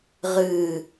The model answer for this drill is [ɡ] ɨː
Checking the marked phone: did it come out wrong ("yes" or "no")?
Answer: yes